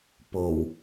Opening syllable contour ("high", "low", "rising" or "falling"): low